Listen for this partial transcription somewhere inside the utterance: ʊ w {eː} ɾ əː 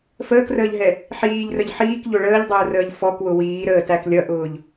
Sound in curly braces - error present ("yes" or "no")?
yes